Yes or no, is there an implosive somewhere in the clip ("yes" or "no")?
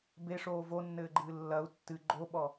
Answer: yes